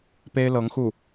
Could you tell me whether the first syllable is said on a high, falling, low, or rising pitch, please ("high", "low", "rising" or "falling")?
high